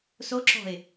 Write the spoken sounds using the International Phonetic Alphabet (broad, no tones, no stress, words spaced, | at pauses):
soǁɔ̤ɪ̯